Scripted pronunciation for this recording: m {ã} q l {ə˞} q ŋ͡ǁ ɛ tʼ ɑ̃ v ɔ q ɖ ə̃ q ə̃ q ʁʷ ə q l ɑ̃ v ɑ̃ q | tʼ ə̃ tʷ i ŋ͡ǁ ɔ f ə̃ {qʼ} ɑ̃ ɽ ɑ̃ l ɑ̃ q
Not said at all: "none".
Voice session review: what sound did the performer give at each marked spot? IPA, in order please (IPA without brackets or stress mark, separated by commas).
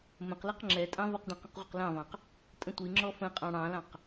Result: ə̃, ʌ, qʼ